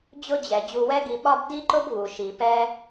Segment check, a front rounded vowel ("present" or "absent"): absent